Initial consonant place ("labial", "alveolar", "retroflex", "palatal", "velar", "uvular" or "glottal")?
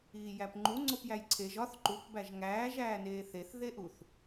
palatal